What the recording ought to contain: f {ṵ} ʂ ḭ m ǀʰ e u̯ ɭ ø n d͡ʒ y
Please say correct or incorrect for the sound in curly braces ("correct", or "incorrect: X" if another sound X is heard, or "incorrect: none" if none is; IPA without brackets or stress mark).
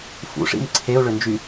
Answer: correct